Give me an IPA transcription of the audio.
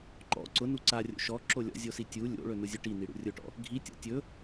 ǃ ɔ̰ ǀ ʊ n u ǀ a rʲ o̰ ʃ ɔ ǁ o lʲ ɔ̰ zʲ o s i tʲ u lʲ o̰ ɭ ɵ n ʊ zʲ ʊ ʈ i n i ɽ ṵ rʲ ʊ ʈ ɔ̰ | ɡʱ i tʲ ɔ̰ tʲ ɵ

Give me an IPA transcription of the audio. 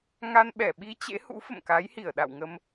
ŋ a˧ n ɓ ɛ˧˩ ɓ i˧ t͡ɕ ḛ˧˥ h ṵ˧˥ f ə̰˧˨ m k a˨˦ j h i˧˩ ə̯ ɗ a̰˧˨ w ŋ ə˧ m

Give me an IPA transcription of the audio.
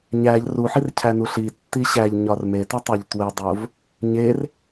ɲ æ ʎ r u ħ i r cʰ æ n u ɬ i tː i ɕ æ ʎ ɲ ɒ r m e t i tˤ æ ʎ t w e dˤ o v | ɲ e r

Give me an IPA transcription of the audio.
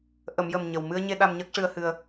ʔ ə˨˩˨ m j ə˨˩ m ɲ ə˨˩ w m ɨ˧ ə̯ ɲ e˧ ɗ a˧ m ɲ əː˦˥ k̚ ʂ ɨ˧ ə̯ h ɨ˧ ə̯

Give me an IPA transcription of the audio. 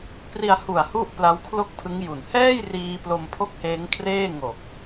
p r i˧ a̯ h u˨˩ a̯ h u˥˩ ʔ p l a˦˥ w kʰ l o˥˩ k̚ pʰ ɯ˦˥ ŋ j u˨˩ n h ɛː˥˩ j r iː˧ p l o˧ m pʰ o˦˥ k̚ h eː˦˥ ŋ kʰ r eː˥˩ ŋ o˨˩ k̚

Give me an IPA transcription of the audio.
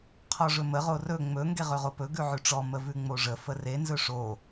qʰ ɔ ʐ ɵ m ə ʁ o r ɵ ŋ͡m ɵ ŋ ɡ e ʁ ɵ ʁ o p ɵ ɡ ʉ ʕ ʉ ʈ͡ʂ ɔ m ə v ʉ ŋ͡m o ʐ ə f ə r e n z ɵ ʂ o

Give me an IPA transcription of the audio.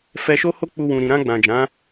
f ɛ˧ ʃ o˦ h o˦ k͡p u˧ w ũ˨ ɾ ĩ˨ ɾ ã˧ ɡ͡b ã˨ d͡ʒ ã˨˦

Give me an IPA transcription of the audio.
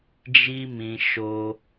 d͡ʒ i˧ m ĩ˨ ʃ o˧

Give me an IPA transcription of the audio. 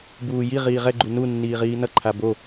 b uː j i ʁ iː ʁ ɛ ɡ͡ǃ u n u nː iː ʁ iː n ʌ ǃʰ a b o

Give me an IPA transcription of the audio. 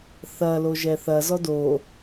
θ ɐ l o ʒ ɛ θ ɐ z ɔ d o

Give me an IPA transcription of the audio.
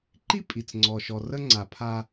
ǃ i˦ pʼ i˨ t͡s ŋ͡ǀ ɔ˨ ʃ ɔ˨ r ə˦ ŋ͡ǀ a˨ pʰ a˦

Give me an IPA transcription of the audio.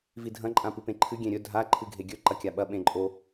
v i dʱ ɐ̃ ǃʼ ã p ɨ p ẽ ǃʰ ɨ ɡʲ ẽ ɾʲ ɵ dʱ a ǃʰ ɨ ɡʱ e ɡʲ ɵ ǃ ɐ kʲ a ɓ ɐ ɓ ẽ ǃʼ o

